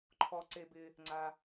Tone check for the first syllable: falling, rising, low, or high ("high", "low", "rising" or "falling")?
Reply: low